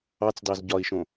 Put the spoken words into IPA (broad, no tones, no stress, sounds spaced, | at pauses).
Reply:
ɑ t͡s d ɑ z ɟ ɒ i̯ ʃ õ